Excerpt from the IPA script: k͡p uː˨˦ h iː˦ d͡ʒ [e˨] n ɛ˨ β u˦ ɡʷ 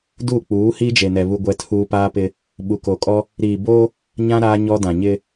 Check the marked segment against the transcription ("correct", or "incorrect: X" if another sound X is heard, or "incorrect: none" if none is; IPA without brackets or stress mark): correct